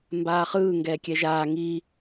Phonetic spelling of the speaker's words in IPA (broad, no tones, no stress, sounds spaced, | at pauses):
m b aː χ ɯː ŋ ɡ ɛː kʲ ɛ ʒ aː ŋ i